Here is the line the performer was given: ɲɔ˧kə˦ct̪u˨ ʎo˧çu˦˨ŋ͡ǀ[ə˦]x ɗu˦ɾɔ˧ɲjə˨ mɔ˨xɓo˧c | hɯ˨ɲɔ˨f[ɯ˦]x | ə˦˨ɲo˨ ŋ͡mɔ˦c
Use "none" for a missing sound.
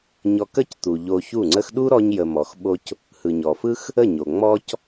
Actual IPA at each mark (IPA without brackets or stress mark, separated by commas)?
ə˦, ɯ˦